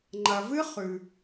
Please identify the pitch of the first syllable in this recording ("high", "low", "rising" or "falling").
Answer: low